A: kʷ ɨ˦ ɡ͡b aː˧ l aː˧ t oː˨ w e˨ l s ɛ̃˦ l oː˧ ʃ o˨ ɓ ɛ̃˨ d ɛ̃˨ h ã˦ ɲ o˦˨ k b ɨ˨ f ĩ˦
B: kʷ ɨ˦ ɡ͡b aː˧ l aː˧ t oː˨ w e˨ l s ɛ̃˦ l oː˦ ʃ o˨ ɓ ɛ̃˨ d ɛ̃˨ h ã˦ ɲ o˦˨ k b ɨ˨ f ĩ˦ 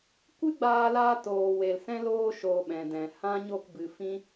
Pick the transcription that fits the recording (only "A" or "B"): A